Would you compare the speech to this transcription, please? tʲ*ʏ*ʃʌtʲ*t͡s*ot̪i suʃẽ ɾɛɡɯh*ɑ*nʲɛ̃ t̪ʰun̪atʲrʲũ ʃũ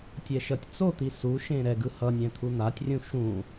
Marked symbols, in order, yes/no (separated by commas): no, yes, no